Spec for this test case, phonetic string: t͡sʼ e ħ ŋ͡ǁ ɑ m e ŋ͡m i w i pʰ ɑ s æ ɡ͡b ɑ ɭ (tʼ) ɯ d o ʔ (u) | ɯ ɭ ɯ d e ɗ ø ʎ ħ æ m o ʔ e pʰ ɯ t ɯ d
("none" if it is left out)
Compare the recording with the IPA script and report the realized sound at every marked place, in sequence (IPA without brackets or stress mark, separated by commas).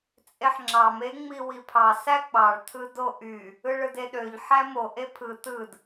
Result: tʰ, y